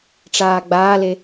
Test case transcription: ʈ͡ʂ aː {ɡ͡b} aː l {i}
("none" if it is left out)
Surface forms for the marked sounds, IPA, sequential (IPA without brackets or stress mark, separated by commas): ɡ͡b, e